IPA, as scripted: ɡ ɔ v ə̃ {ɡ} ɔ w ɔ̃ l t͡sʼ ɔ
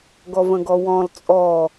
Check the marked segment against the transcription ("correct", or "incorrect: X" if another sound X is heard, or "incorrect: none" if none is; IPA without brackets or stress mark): correct